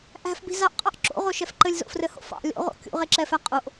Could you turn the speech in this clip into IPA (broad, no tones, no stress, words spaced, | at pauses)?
ʔæ̤fbi̤ zɑʔqʼɑʔ ǁo̰ʁoʃɛf ǃɘlʲzo̰frɘho̰ fɑ̰ lʲo̰ʁo̰ kʲṵʁeǁɛfæ qʼoʔ